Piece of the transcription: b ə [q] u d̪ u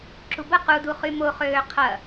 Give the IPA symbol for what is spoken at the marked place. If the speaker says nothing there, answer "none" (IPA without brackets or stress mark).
q